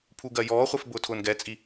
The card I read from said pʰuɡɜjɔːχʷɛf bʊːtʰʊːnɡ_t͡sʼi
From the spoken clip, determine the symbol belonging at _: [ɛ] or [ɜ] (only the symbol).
ɛ